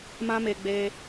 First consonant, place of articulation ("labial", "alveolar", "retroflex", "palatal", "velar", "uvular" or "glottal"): labial